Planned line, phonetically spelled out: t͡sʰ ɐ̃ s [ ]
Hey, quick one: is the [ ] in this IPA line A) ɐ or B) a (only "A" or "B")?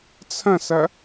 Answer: A